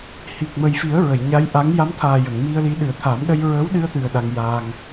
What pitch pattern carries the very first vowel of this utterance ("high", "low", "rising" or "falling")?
low